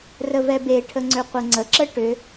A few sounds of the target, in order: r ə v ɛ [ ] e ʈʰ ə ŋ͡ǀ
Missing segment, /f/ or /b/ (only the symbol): b